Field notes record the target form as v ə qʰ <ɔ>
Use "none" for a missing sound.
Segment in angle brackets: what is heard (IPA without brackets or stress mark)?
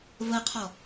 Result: ɔ